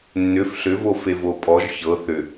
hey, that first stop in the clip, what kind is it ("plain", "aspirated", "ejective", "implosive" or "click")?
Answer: ejective